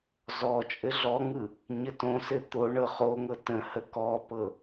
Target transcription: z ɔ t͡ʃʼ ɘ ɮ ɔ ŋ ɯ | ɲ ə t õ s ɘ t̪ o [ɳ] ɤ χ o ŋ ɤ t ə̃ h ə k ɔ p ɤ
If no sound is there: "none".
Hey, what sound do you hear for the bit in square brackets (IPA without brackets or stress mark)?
ɳ